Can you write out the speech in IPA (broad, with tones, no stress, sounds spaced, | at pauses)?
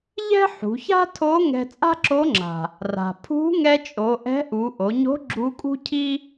ʎ ɛ̤˥ ħ ṳ˩˧ ç a̤˥ tʰ o˧˥ ŋ ɛ̤˧ t͡sʼ a̤˥ ǁ o˧˥ ŋ͡ǁ a̤˩ | r a̤˩ pʰ ṳ˧˥ ŋ ɛ˧ t͡ʃʼ o˩˧ ʔ ɛ̤˧˥ ʔ u˩˧ ʔ o˩˧ ɲ o̤˧˥ ɡ͡ǁ u˧˥ kʼ ṳ˥ cʰ i˥